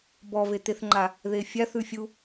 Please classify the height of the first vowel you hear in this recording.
mid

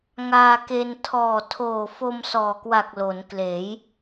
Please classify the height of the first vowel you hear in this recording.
low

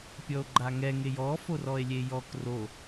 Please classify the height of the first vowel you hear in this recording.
mid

